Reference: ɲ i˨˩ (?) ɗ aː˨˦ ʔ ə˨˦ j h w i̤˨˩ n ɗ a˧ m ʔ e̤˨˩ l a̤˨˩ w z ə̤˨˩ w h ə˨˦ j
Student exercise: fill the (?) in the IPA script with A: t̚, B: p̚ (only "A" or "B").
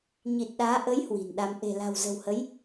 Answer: A